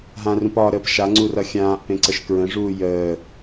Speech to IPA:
ɦ ã r ũ p ɒ ɾ əː p ʃ a ŋ͡ǀ u r ʌ xʲ ãː ʔ p ẽ ǀ ə ʃ k ɹ ə̃ ʐ uː j əː

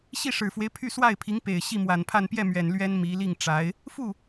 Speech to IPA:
ɕ i˥˩ ʂ ɻ̩˨˩ f w e˦ ɪ̯ pʰ y˥˧ s w a˥˩ ɪ̯ pʰ i˧˥ ŋ p e˨˩ ɪ̯ ɕ i˥˩ m w a˨˩ n pʰ a˥˧ n p j ɛ˥˩ m ɥ ɛ˨˩ n l ɥ ɛ˥ n m i˧˥ l i˥˩ ŋ ʈ͡ʂ a˧˥ ɪ̯ | f u˥˩

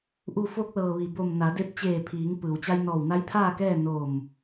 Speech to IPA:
ʔ u˧˩ f o˧ k̚ l ɤː˩ ʋ i˩ b o˧˩ m n a˩˧ d e˧ p̚ t͡ɕ eː˧˩ pʰ iː˩˧ ŋ p ɯː˩ w t͡ɕ a˧ j n ɔː˧˩ w n a˧˥ j pʰ aː˥˨ k ɛː˥˨ n o˧˩ m

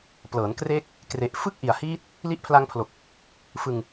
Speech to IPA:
p l ɤː˩˦ n k r eː˦˥ k̚ | k r e˨˩ ʔ f ɯ˥˩ k̚ ʔ i˨˩ a̯ h iː˦˥ t̚ | l i˦˥ ʔ pʰ l a˦˥ ŋ pʰ l o˨˩ k̚ | f ɯ˧ ŋ

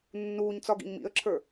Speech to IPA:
nː uː ɲ t͡s ɒ ɡ ḭ ɲ m ḭ ə̯ ǁʰ ə˞

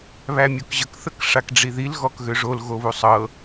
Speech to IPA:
β æ mʲ o k ʑ ə k θ ə k ʂ a k ɖ͡ʐ i ð i l ɣ ɔ k ɣ ø ʐ o l ɣ o β u sˤ ɤ

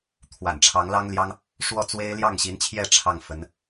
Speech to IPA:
t̪ʰ w a̰˨˩ n ʈ͡ʂʰ ɑ˧˥ ŋ l ɑ˥ ŋ l j ɑ˥ ŋ | ʂ w ɔ˥˩ t͡s w e˥ ɪ̯ l j ɑ˥˩ ŋ ɕ i˧˥ n t͡ɕʰ j ɛ˥˧ ʈ͡ʂʰ ɑ˥˩ ŋ f ə˧˥ n

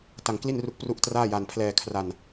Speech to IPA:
t a˧ ŋ k l i˥˩ n r u˦˥ k̚ p r u˥˩ ʔ t r aː˥˩ j a˧ n pʰ l ɛː˧ kʰ r a˧ n

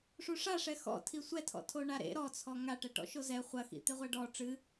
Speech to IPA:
ʂ u ʂ a ʂ ɛ x ɔ̰ tʰ i sʷ ɛ tʰ ɔ̰ tʰ o ɳ a ɾ ḛ ɾ ɔ t͡sʰ ɔ ŋ a ʈ ɛ ʈ ɔ̰ ʃ o z ɛ χʷ ɐ x ḭ t̪ e ʁʷ ɛ ɖ ɔ ʈ͡ʂ ɨ

